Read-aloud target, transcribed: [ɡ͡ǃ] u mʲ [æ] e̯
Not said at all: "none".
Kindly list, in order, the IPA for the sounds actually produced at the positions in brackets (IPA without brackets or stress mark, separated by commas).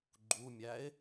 ɡ͡ǃ, æ